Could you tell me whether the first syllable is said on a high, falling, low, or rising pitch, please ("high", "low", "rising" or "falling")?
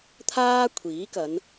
high